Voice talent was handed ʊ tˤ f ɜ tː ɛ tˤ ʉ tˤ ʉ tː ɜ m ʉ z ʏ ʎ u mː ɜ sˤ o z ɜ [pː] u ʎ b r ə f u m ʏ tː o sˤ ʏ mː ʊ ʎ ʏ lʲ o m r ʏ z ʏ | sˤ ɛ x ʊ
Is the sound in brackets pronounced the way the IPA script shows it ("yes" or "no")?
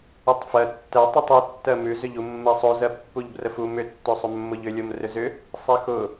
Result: yes